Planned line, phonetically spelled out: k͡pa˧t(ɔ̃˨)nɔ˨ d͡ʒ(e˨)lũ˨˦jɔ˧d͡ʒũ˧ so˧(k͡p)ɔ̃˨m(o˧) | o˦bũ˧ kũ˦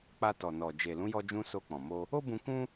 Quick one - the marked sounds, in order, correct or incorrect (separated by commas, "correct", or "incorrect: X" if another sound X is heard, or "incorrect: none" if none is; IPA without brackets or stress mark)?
incorrect: ɔ˨, correct, correct, correct